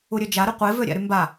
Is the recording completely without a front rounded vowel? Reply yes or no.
no